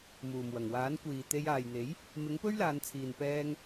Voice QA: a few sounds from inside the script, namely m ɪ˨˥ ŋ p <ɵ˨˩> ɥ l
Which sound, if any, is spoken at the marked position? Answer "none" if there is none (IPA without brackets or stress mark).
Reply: ɵ˥